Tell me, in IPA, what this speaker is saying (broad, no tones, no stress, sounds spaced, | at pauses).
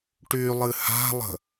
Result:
ʈ y lˠ ɨ h a̤ lˠ ə̤